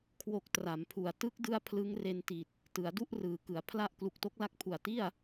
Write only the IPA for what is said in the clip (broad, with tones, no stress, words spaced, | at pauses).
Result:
kʰwo˦˥k̚ tra˩˦mpʰu˨˩a̯ tɯ˦˥k̚dɯ˦˥a̯ pʰlɯ˦˥ŋre˧n ti˨˩t̚ | tɯ˩˦a̯du˥˩ʔ rɯː˩˦kɯ˩˦a̯ pʰla˥˩ʔ klu˨˩k̚to˦˥k̚la˦˥k̚ pʰu˨˩a̯ti˥˩a̯